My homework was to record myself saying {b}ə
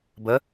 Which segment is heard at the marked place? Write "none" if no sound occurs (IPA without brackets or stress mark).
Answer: b